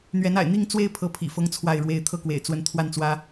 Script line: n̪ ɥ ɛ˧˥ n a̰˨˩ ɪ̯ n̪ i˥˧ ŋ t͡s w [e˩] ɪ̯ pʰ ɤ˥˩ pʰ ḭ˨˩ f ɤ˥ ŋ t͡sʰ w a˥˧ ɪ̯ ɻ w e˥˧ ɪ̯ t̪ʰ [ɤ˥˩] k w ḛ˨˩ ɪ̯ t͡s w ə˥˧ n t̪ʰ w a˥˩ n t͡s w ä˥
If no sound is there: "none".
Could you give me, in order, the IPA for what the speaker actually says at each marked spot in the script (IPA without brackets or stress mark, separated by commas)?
e˥˧, ɤ˥˩